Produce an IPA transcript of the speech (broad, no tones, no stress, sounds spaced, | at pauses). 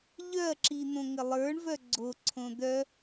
ʎ œ ɐ̯ ǁ i n̪ õ ŋ ə lˠ ə˞ ɳ v œ ɡ͡ǀ o ǀʰ õ d̪ œ